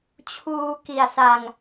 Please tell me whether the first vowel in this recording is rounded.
yes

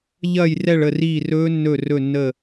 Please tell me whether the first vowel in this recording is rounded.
no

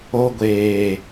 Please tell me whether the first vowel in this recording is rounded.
yes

